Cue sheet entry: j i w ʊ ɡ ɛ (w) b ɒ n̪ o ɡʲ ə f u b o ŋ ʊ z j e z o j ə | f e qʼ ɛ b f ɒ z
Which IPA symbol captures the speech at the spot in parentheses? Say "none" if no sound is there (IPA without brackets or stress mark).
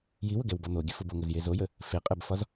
w